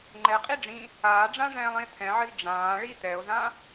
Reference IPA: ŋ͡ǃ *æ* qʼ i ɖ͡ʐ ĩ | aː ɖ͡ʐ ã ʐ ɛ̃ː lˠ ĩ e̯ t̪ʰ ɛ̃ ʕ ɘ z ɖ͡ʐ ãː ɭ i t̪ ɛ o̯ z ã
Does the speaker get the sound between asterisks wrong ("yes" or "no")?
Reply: yes